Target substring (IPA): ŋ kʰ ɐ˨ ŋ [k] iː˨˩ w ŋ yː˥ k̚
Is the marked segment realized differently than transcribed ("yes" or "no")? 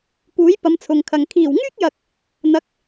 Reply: yes